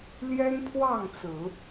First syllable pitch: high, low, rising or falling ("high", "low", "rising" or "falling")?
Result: high